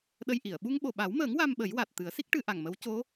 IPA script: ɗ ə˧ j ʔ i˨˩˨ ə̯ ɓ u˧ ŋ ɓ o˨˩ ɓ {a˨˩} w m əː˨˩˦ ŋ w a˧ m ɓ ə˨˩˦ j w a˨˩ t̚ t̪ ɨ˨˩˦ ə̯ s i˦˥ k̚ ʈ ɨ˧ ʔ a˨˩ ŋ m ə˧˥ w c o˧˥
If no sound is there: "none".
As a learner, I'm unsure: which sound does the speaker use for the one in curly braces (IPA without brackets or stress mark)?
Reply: a˨˩˦